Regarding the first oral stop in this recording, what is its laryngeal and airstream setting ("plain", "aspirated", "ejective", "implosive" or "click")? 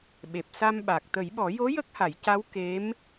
implosive